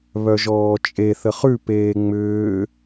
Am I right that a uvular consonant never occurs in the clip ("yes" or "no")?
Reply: no